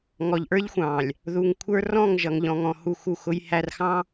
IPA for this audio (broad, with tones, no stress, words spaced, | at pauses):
ŋɔ˨ʎʔə˞˦ʎxʷɑ̃˨lʲ | ðu˨ŋkʷʰə˞˦ rɔ̃˦˨ŋʒʌ˨ŋʎɔ̃˨ŋɔ̃˨ hu˦˨xu˦˨xʊ˦j hæ˦rxɑ̃˦